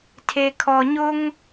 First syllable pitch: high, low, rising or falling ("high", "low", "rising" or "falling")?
low